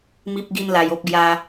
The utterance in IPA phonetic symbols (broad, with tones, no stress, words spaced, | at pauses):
mi˦p̚ɡi˦nla˧j o˦p̚ɡja˦